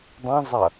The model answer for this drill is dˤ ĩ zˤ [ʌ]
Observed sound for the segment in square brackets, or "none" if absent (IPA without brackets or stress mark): ʌ